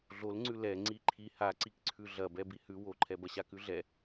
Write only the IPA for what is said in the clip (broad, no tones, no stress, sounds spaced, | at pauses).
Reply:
ɮ o l ŋ͡ǀ ʉ l ɛ ŋ͡ǀ i ǃʰ i h a ǀ i k ǀʰ ʉ ɮ ɐ b ɛ b i h ʉ w o ǃʰ ɛ b ɐ ɕ a k ʉ ɮ ɛ